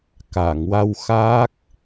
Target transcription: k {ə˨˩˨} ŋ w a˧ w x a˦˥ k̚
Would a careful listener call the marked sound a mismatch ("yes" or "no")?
yes